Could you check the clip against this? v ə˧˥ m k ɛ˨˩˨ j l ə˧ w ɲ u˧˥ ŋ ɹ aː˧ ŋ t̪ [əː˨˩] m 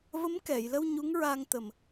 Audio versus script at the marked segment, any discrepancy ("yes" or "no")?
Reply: yes